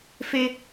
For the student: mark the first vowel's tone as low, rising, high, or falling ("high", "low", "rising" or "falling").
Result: high